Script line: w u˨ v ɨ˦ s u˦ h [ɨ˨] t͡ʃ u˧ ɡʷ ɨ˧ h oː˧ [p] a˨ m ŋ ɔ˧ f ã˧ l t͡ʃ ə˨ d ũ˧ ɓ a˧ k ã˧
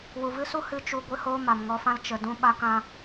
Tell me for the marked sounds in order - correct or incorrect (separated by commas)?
incorrect, incorrect